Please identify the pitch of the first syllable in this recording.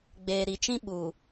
low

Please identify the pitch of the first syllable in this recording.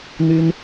high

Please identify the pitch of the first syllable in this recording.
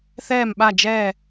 falling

